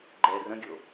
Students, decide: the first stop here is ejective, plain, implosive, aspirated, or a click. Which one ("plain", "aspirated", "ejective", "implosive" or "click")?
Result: click